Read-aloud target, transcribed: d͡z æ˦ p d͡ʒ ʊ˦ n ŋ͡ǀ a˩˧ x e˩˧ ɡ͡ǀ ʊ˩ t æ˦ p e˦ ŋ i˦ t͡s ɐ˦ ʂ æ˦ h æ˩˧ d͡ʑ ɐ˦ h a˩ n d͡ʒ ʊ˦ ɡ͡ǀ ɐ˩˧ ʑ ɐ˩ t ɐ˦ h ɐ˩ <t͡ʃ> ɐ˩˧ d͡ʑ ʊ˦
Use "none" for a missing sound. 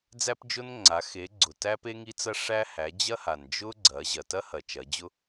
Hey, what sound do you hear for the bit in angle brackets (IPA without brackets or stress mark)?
t͡ʃ